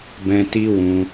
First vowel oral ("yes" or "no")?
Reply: no